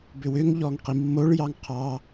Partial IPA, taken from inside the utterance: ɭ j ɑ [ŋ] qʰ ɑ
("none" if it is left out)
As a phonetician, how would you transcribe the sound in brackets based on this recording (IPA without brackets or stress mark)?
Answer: ŋ